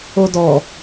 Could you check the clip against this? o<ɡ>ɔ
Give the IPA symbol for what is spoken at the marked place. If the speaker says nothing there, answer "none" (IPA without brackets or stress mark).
d